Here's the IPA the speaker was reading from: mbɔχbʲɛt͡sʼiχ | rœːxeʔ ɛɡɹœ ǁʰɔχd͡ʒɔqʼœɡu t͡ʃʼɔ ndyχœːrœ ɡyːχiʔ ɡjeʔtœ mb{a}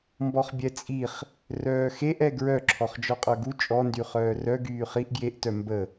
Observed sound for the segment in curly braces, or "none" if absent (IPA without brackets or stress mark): ə